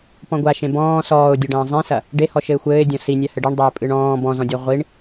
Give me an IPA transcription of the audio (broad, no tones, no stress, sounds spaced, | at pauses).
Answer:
p ɔ̃ ɡʷ a ʃ ẽ b ɔ̃ː s ɔː ʊ̯ dʲ ɐ ɖ ɐ̃ː zˤ ẽ s ɐ | ɖ e h ɔ ʃ ɘ ɪ̯ xʷ ɘː ɪ̯ dʲ ɔ̃ s i nʲ a h ɘ ɖ i ɳ dˤ eː pʼ ɨ ɳ ɔ̃ː b ɔ̃ z ɔ̃ dʲ ɔ ʁʷ i ɳ